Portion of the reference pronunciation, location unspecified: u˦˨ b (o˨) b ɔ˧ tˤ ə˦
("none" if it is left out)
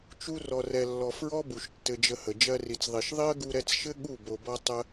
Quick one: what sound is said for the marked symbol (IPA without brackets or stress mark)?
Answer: o˨